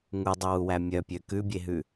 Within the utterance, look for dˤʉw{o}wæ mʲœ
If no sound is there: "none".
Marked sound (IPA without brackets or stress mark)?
u